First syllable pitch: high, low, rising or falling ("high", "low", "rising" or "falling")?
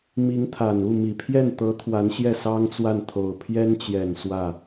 rising